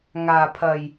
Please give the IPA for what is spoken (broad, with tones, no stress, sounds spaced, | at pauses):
ŋ aː˨˩ pʰ ɐ˨˩ j